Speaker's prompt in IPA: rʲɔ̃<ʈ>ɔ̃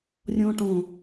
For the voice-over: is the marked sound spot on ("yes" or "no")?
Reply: yes